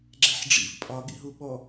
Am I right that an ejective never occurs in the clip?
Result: no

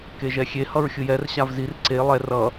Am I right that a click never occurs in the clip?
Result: no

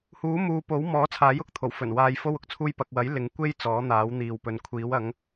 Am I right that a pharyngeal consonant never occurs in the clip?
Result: yes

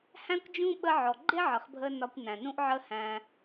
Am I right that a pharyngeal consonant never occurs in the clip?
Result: no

